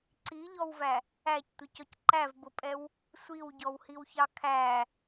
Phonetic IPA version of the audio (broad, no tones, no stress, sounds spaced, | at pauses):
ǀ i ʎ ɔ w v æ | æ c tʷ ɪ c ɔ c ǃ æ v b ʊ pʼ ɛ w | sʷ i w ɟ ɔ w h i w ç ɑ kʰ æ